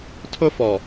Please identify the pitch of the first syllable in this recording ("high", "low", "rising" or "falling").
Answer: high